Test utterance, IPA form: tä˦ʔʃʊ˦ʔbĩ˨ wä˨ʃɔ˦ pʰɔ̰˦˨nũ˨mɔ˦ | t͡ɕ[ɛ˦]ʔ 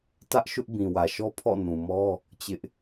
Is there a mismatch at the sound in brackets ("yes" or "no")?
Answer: yes